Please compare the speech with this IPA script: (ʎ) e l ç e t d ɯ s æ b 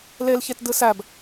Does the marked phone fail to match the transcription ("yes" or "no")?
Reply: yes